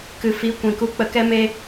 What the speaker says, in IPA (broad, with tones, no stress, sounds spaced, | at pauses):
k ɨ˨ f i˨˦ kʷ ĩ˨ k u˧ k͡p ə˧ k ɛ˦ m e˦